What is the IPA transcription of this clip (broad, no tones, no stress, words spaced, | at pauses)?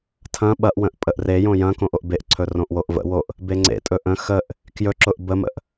tʰɐ̃ ɓɐʔwə̃ʔ pʼəʔrejõ jɐ̃kõʔ oʔbeʔǀʰɵ rõʔwoʔvə̰woʔ | beŋ͡ǀḛtʼɵ ʔə̃ xəʔ | kjɵ ǁʊʔbəmə̰ʔ